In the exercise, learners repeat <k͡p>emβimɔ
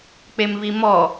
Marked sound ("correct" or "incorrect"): correct